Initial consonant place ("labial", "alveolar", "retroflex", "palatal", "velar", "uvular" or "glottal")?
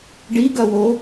retroflex